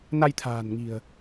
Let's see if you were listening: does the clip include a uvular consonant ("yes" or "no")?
no